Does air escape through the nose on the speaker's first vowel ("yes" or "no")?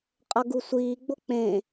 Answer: no